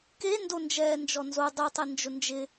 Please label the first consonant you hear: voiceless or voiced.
voiceless